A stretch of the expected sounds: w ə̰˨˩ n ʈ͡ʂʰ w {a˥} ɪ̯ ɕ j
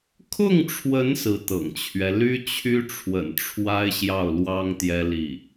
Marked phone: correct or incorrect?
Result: correct